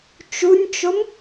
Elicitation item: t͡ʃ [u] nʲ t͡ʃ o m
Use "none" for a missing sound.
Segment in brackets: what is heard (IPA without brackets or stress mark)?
u